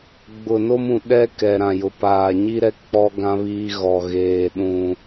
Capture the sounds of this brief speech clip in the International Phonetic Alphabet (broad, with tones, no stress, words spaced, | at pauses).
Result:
ɡ͡bʊ˨no˦mũ˨ ɗɛ˦ kɛ˨ ɾã˨jʊ˨ paː˨ɲi˦ɾɛ˦ k͡pɔ˦ɡã˦ βiː˦ɣɔ˨ ɣeː˨ ɗũ˨